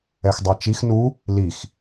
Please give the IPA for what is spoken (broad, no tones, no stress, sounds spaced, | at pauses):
ɛ x dˤ ɑ t͡ʃ i x n u | l i x